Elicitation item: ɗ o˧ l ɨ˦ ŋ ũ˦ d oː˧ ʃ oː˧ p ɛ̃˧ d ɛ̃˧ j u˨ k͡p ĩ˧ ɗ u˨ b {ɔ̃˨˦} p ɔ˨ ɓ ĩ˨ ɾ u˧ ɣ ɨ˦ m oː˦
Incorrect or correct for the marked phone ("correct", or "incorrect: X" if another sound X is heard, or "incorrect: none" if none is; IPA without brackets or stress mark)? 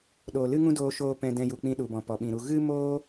incorrect: ɔ̃˨